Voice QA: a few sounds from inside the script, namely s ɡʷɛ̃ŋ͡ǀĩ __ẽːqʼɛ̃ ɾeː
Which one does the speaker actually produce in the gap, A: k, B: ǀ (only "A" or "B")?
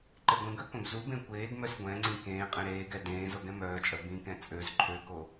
A